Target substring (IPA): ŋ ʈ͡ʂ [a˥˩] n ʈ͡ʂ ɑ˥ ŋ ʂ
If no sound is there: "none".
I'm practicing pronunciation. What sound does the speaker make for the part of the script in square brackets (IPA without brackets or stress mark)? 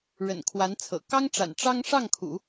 a̰˨˩